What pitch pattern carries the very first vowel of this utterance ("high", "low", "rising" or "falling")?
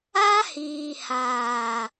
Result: high